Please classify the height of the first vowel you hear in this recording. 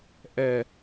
mid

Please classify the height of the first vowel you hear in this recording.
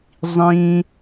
high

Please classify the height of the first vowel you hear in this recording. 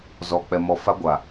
mid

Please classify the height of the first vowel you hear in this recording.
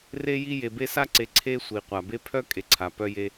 mid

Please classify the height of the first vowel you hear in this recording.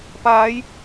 low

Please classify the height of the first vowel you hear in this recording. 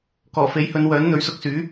mid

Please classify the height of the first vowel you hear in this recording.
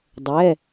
mid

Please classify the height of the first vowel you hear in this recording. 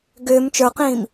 high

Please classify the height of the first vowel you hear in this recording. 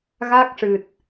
low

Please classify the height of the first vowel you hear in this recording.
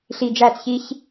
high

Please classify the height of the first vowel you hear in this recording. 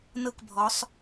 mid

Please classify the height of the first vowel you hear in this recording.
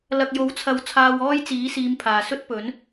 low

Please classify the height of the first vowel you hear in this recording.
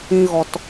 high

